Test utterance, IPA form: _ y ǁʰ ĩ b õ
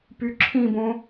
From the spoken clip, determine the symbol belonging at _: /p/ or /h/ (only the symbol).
p